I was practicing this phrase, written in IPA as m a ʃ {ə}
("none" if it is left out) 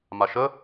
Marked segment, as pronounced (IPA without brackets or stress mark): ə